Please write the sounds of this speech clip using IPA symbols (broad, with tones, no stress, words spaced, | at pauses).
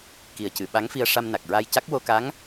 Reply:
ki˨˩ə̯cɨ˨˩˨ ɓa˧˥ŋfi˧ə̯ ʂa˧mna˨˩k̚ɹa˧jca˦˥k̚ wo˧ka˧˥ŋ